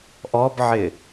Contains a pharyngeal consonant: yes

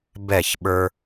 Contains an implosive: yes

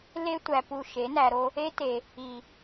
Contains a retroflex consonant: no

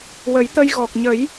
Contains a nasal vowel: no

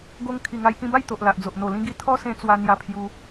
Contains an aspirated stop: yes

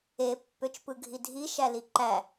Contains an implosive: no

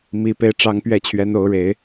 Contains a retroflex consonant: yes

